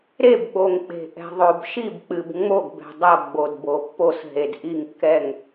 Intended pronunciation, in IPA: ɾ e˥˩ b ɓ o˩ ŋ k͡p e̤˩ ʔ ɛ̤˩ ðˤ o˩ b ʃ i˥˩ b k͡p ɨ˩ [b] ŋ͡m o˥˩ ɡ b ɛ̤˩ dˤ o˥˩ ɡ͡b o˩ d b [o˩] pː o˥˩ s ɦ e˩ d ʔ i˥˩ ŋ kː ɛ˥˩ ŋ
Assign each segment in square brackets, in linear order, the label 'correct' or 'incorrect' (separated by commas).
correct, correct